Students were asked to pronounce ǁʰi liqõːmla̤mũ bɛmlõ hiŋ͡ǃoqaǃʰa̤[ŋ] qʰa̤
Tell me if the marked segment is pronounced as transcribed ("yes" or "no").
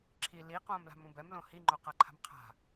no